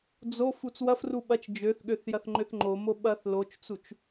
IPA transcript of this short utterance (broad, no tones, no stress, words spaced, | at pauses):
d͡zof ut͡swɐfru ɓɐt͡ʃ d͡ʒøθɠøθ jɐθŋ͡ǃʏθŋ͡ǃomo ɓɐθ lot͡ʃt͡sut͡ʃ